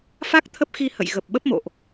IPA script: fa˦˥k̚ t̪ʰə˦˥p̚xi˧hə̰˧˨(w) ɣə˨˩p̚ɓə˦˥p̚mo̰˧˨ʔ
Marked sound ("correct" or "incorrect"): incorrect